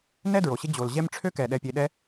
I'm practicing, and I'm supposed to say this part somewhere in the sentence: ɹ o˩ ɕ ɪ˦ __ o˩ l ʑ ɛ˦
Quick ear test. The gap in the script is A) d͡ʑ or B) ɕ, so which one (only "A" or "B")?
A